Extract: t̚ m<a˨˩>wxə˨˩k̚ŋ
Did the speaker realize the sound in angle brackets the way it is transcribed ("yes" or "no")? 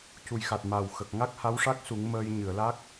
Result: yes